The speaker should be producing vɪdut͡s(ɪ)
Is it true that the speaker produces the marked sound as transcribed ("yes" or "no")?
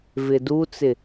yes